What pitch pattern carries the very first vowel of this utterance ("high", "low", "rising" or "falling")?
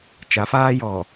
rising